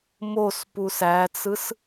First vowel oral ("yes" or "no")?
yes